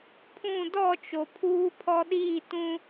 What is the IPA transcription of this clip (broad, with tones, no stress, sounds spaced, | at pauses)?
pʰ ũ˦˨ d ɔ˦˨ t͡ʃ o˨ pʰ uː˦ pʰ ɔ˦ ɗ iː˦˨ t ũ˦